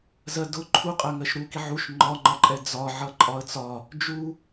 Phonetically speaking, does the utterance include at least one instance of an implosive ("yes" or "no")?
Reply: no